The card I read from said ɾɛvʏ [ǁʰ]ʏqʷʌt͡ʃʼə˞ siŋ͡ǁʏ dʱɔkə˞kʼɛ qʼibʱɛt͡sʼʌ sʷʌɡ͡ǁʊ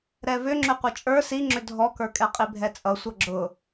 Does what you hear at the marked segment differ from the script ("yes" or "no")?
yes